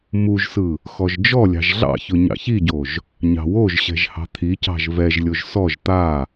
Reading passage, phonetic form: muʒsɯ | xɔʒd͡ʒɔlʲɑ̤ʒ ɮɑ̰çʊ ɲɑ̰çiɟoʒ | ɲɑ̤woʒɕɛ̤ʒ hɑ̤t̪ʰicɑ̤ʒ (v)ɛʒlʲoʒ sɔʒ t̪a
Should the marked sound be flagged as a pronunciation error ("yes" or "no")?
no